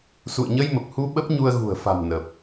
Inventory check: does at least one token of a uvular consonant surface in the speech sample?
no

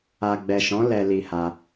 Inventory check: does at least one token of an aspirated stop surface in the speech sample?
no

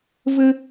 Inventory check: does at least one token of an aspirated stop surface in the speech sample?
no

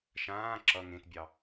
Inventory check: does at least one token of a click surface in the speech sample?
yes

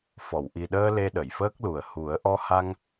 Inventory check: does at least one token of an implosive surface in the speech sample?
yes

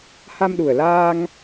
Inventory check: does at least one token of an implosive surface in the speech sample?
yes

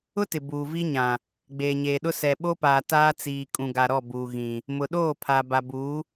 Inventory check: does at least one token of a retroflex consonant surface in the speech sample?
no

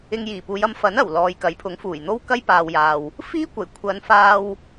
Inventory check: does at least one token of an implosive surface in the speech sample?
no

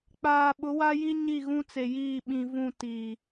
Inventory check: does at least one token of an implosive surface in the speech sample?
yes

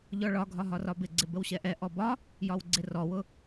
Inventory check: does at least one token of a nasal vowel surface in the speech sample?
no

